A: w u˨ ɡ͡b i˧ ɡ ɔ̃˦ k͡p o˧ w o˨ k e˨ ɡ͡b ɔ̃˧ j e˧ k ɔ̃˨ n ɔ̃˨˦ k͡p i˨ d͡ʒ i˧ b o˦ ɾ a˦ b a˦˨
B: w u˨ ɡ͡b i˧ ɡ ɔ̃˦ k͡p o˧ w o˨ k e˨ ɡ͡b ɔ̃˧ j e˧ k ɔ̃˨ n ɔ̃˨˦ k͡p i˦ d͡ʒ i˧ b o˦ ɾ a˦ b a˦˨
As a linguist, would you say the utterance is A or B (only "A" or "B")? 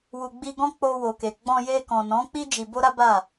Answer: B